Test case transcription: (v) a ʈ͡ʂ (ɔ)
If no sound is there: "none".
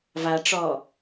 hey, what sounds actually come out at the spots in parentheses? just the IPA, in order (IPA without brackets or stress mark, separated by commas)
v, ɔ